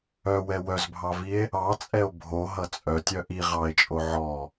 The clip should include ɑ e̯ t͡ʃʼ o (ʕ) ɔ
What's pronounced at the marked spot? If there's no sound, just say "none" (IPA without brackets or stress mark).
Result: ʕ